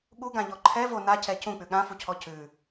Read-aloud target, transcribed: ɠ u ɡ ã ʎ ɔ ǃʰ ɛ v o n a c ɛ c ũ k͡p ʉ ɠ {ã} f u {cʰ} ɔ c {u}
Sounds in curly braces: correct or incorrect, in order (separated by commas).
correct, correct, incorrect